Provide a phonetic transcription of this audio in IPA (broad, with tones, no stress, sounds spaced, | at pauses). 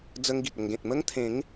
d͡z ə˦ ŋ ɡ i˨ t̚ ə˧ ŋ ɡ ẽ˨ t̚ m ə˦ ŋ t̪ʰ ẽ˨˦ ŋ